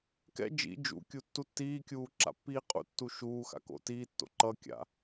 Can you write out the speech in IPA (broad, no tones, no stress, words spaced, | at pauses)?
kɛ̰ d͡ʒḭ d͡ʒṵkʲu tːutːiːkʲuː ǁa̰pːiːqʼṵtːu ʃuː xa̰ko̰tiːtːo̰ ǃʌkʲa̰